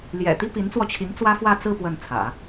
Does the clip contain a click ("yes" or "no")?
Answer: no